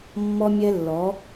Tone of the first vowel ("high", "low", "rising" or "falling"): high